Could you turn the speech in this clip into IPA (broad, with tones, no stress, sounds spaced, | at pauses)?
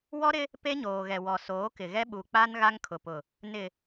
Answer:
w ɔ˦ ɾ ɪ˦ | p e˦ ɲ oː˨ ɣ ɛ˨ w ɔ˨ s oː˨˦ k ɪ˨ ɣ ɛ˦ ɓ u˨ k͡p a˦ n ɣ a˦ ŋ kʰ ʊ˨ p ʊ˨ | n ɪ˨